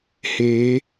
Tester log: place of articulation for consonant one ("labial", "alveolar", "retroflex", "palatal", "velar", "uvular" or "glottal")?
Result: glottal